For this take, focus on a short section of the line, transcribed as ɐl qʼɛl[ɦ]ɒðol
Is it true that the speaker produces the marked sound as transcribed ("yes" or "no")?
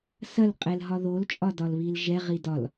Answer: yes